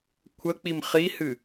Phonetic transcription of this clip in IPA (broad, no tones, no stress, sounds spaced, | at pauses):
kʷʰ ə k͡p i m χ i h ɨ